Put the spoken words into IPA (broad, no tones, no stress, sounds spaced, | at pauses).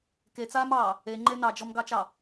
k e t͡s aː m ɑː | e ŋ͡ǃ e n ɑ d͡ʒ ɔ m ɡ ɑ t͡ʃ ɑ